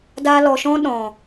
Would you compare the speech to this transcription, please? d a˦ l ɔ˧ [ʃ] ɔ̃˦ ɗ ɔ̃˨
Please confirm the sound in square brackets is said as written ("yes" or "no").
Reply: yes